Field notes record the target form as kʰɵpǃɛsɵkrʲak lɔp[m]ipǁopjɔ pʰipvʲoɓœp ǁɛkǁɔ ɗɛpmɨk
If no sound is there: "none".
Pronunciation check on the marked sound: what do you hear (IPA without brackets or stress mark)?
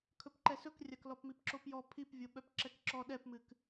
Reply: m